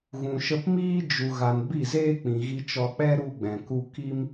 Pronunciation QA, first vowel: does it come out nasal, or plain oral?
nasal